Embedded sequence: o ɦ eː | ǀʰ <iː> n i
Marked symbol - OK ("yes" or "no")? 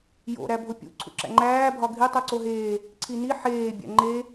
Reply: no